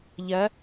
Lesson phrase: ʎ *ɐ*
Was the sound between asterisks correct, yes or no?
yes